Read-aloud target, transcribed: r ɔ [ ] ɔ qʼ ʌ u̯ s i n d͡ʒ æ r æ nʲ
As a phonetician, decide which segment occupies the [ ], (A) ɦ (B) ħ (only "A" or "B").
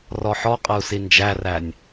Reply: B